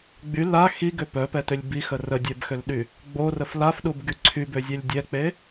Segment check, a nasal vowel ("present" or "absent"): absent